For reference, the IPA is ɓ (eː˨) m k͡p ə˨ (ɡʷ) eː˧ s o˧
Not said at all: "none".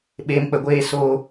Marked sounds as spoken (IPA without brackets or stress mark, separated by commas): eː˨, ɡʷ